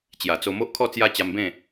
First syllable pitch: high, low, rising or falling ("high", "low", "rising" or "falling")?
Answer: low